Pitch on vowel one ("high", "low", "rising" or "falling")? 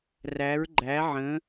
rising